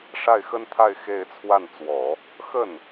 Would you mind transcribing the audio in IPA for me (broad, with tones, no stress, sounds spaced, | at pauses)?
ʂ a˥˩ ɪ̯ x ə˥ n t̪ʰ a˥˧ ɪ̯ x e˥˧ ɪ̯ t͡sʰ w a˥˩ n t͡s w ɔ˨˩˦ | x ə˥˩ n